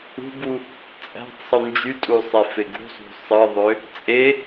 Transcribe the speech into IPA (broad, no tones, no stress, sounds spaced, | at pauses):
ṳ b u | t͡sʼ æ̤ tˤ sˤ u n d͡ʒ y tʼ u sˤ e f e ɡ ṳ zˤ ṳ sˤ ɯ ðˤ ø | t͡sʼ e